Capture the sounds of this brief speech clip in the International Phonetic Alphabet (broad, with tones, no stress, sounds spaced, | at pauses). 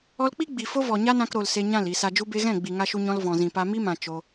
ɔ˧ l k͡p i˦ ɡ͡b i˨ f o˦ v ɔ˨ ɲ a˦ n ã˧ k ɾ o˨ l s e˧ ɲ ã˦˨ l i˨ s a˨ d͡ʒ u˧ b e˧ ɣ ɛ̃˦˨ ɡ͡b i˨ ŋ a˧ ʃ u˧ ɲ ɔ̃˧ l v ɔ̃˨ z ĩ˨ p a˧ m i˦ m ã˨ t͡ʃ o˧